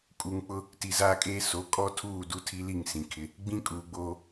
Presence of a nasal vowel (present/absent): present